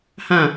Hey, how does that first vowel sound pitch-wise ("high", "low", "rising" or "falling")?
falling